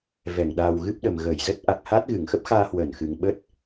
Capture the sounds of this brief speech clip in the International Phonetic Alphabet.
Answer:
v ɛ˧˩ ŋ ɗ a˨˩ w ɣ ɨ˦˥ p̚ ɗ ə˨˩ m ɣ ə˧˩ j z ə˦˥ t̚ ʔ a˨˩ k̚ h a˦˥ t̚ ɣ ɨ˧˩ ŋ x ə˦˥ p̚ x aː˧ h w əː˧˩ n x ɨ˨˩ ŋ ɓ ə˦˥ t̚

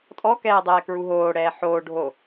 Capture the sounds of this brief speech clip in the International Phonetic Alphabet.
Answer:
tʼ ɔ k ɛː dˤ ɛː k ɹ u ɦ oː ɽ ɛː ħ oː ɖʱ o

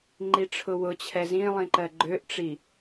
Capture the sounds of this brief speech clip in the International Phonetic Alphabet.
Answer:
ŋ͡ǃ i ʈ͡ʂʰ ʊ w ʊ t͡ɕʰ ɛ z ĩ lˠ ĩ ǃ ɜ ɡ͡ǃ ø ʔ ʈ͡ʂ i

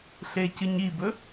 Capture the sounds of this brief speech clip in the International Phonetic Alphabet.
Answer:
ɬ e c ɨ ɲ i b ɵ

